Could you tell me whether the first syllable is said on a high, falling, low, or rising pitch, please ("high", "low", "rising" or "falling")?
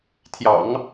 low